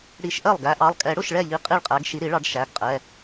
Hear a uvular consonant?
yes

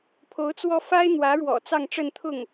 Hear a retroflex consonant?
yes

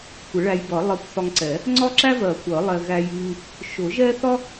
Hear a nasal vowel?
no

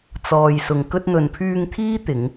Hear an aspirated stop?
yes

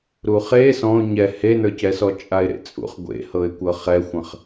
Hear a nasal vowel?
yes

